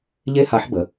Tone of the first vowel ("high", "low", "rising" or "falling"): high